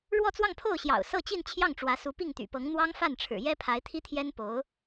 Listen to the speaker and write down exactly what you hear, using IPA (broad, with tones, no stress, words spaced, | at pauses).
ɻwɔ˥˧t͡swɑ˥˧ŋpʰo˥˩ʊ̯ɕjɑ̰˨˩ʊ̯ sɤ˥˧t͡ɕi˥˧nt͡ɕʰjɑ˥˩ŋʈ͡ʂwä˧˥ su˧˥pi˥˩ŋt̪y̰˨˩pɤ˧˥ŋ n̪wɑ˥ŋfa˥˩nʈ͡ʂʰɻ̩˨˩ jɛ˥ pʰa˧˥ɪ̯t̪ʰi˥t̪ʰjɛ˥n po˧˥ʊ̯